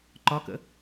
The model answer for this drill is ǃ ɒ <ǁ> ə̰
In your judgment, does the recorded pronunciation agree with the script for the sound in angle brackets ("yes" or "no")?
no